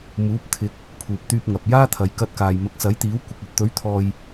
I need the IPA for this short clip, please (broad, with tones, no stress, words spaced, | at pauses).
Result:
muː˨˥p̚t̪ʰɪ˨˥k̚ | pʰuː˨p̚t̪yː˧p̚ŋɐ˨p̚ jaː˥t̪ʰɐ˨˧j kɐ˧t̚kaː˨j mɐ˨˥k̚sɐ˨˥jt̪iː˨˥w kʷɪ˨k̚ɵ˨t̚t̪ɵ˨˥ɥt̪ʰɔː˨j